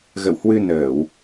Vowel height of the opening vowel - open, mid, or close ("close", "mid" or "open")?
mid